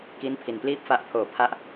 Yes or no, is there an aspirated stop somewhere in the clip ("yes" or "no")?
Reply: yes